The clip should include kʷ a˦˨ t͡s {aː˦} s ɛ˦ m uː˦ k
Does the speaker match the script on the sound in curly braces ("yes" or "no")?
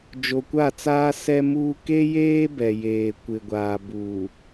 yes